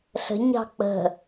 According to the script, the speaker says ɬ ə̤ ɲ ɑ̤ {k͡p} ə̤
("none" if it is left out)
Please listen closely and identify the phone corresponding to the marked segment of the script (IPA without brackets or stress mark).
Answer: k͡p